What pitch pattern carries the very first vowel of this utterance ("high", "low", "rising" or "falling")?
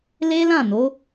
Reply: high